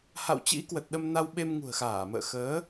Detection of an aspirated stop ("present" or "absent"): absent